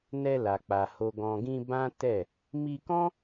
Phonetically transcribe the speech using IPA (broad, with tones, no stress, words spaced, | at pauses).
nɛ˧ la˨k͡pa˨ ho˨ɡɔ̃˨ɡĩ˧ bã˦ tɛ˦˨ | mi˧kɔ̃˦